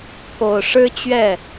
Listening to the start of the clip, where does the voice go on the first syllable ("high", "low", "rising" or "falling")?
low